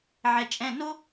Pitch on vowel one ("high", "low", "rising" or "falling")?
low